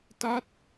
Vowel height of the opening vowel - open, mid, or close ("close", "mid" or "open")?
open